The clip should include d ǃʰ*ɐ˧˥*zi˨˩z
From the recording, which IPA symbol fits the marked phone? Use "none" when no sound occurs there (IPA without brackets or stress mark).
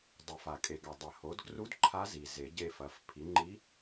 a˧˥